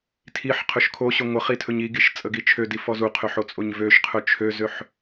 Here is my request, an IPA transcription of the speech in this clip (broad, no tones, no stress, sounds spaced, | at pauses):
tʰ i ħ qʰ ɵ ʃ kʰ o ɕ ɵ ŋʷ ə χ i tʰ ɵ ɲ i ɡ i ʃ t͡sʼ ə ɡ i t͡ʃʰ ø d i f ɔ z u qʰ ø ħ o t͡sʼ o ɲ v ø ʃ qʰ ɵ t͡ʃʰ ø z ø ħ